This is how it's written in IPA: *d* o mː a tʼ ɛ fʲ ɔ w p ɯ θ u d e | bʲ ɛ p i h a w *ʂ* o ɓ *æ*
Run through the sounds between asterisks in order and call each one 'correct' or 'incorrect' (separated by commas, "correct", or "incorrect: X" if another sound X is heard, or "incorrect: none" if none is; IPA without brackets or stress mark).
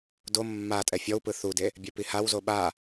correct, incorrect: z, incorrect: a